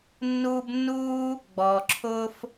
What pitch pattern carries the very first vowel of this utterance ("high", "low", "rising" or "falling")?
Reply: high